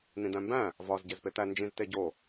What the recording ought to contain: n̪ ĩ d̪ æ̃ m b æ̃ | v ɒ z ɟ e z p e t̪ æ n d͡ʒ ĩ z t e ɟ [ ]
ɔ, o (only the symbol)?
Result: o